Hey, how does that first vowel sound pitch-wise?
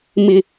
low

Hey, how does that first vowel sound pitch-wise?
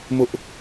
high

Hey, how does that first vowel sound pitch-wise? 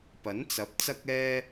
rising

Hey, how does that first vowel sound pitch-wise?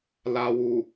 low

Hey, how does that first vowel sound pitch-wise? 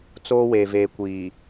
high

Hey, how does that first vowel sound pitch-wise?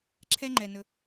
high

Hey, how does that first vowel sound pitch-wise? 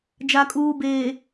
low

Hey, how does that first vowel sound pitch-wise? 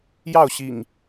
falling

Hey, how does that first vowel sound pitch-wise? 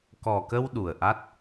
low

